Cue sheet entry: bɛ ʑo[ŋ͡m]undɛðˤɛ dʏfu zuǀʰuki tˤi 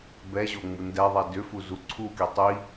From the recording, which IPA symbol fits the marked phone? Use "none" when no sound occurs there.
ŋ͡m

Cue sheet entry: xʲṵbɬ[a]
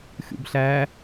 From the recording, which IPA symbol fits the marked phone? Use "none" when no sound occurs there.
æ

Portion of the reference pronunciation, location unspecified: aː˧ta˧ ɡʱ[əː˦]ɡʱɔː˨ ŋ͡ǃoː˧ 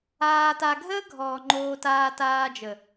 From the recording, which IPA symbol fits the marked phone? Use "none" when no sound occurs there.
əː˦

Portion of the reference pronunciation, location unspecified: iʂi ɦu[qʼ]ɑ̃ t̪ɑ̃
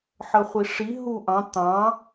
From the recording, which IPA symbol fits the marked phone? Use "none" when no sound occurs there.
ʔ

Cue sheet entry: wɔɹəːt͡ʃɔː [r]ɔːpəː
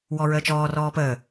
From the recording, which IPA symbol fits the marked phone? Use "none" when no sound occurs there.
r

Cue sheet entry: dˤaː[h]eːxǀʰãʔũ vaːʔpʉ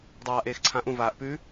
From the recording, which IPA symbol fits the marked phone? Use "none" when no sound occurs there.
ʔ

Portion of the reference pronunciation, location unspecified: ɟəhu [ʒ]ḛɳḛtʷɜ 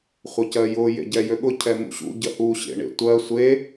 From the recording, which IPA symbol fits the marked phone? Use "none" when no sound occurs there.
ɕ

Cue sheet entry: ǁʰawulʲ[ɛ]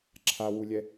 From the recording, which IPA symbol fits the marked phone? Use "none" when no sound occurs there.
ɛ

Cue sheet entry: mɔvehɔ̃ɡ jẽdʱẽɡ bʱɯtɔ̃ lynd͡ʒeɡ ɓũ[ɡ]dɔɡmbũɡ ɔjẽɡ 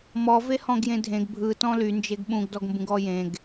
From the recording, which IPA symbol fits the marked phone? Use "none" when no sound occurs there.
ɡ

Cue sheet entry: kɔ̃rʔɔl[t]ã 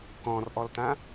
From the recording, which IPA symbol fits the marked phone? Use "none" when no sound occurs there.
t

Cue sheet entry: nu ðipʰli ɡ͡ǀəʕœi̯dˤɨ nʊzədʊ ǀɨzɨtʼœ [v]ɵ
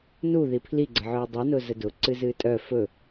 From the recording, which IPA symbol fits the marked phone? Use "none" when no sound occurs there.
f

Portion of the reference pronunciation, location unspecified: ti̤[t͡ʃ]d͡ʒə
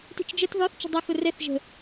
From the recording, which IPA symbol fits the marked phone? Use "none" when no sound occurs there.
t͡ʃ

